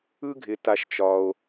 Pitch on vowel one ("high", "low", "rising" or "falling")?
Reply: high